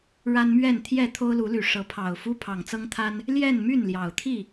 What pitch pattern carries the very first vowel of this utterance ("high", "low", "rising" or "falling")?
high